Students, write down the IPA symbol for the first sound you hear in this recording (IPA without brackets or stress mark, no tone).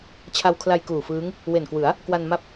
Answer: t͡ɕʰ